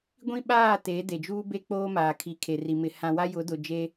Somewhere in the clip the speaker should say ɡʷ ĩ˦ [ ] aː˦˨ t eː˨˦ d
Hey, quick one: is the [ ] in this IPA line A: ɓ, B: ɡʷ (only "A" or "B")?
A